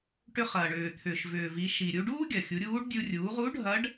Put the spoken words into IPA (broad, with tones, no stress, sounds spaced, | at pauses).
ʈ ʏ˧ χ ɐː˩ ɳ ʏː˩ t̪ʰ ʏː˩ ʃ v ʏː˩ v i˩˧ ʃ i˩ ɾʲ u˧ ɖ uː˥ ɡʲ ɐ˩ xʲ u˩˧ ɾʲ uː˧˥ ɖ dʲ u˧ rʲ uː˩˧ ʁ u˧˥ ɖʱ ɐ˧˥ ɖ